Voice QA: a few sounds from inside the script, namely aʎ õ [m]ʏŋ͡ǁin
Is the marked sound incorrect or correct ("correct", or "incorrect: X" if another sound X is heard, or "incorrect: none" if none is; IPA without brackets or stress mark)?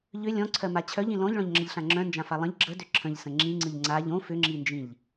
incorrect: f